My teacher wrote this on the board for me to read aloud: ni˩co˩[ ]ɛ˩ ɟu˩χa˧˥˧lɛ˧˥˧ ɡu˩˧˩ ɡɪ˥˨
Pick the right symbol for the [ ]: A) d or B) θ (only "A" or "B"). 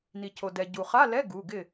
A